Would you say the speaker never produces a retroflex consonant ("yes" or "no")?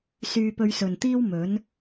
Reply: yes